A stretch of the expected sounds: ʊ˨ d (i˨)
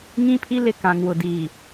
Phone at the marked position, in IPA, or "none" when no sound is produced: iː˨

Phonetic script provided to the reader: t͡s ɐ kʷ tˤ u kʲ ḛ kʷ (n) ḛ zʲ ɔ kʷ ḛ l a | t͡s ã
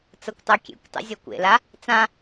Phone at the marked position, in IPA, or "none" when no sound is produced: tˤ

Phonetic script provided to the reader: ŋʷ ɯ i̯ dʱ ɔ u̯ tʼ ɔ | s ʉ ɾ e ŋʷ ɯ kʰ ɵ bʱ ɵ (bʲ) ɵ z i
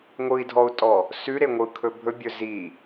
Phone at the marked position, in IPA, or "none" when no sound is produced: bʲ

